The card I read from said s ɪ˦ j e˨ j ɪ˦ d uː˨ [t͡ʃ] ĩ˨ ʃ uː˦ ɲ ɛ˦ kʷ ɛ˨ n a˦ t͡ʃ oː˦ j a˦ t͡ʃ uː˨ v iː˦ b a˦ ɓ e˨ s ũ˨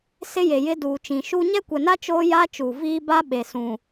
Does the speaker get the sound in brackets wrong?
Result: no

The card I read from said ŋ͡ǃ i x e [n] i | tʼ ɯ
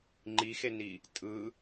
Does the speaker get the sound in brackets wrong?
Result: no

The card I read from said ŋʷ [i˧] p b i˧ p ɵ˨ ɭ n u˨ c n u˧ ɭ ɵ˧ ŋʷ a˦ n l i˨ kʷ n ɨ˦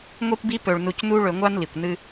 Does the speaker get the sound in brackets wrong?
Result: no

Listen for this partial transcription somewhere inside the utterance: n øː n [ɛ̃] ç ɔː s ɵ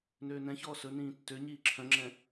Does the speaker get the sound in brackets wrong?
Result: no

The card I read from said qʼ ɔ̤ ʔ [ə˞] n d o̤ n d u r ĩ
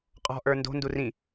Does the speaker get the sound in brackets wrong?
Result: no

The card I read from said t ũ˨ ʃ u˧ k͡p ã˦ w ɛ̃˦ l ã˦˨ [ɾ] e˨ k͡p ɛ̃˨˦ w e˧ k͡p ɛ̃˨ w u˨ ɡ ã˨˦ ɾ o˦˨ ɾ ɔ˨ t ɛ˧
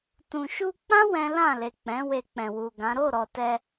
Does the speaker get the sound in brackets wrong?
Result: yes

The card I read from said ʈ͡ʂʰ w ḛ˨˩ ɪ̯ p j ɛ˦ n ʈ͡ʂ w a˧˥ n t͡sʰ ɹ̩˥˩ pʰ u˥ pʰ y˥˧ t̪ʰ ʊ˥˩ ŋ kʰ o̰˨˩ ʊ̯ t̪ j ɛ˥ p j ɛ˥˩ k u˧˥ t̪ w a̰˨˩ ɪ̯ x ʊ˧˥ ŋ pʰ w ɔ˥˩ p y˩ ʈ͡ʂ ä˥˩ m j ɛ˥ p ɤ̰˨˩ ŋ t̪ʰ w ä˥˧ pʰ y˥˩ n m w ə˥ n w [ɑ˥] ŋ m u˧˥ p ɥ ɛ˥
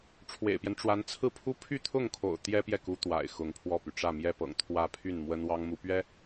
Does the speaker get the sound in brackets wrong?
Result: no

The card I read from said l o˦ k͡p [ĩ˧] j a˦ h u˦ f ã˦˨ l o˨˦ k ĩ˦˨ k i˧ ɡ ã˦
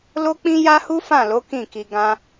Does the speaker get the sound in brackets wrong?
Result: yes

